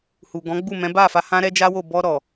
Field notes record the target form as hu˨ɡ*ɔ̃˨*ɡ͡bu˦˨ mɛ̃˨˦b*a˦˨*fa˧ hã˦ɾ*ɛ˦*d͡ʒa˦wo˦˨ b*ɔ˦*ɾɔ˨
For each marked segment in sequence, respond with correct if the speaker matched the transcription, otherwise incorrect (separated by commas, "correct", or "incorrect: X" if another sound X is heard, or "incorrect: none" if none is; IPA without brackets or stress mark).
incorrect: ɔ̃˨˦, correct, correct, incorrect: ɔ˧